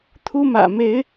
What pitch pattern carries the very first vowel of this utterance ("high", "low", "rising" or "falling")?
high